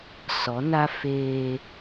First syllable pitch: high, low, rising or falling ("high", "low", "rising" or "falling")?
rising